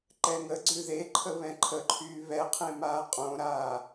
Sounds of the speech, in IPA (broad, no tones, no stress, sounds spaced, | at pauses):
ǃ ɛ ŋ ə ɡ͡ǀ ʉ ð e ǃʰ ə β ɛ̃ ǃʰ ə ǃʰ yː β ɛ qʰ ẽ m aː qʼ õ ɾ aː